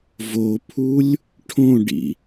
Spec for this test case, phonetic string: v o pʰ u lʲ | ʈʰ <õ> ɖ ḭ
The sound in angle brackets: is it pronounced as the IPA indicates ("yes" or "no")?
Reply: yes